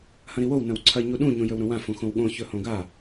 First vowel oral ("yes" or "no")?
no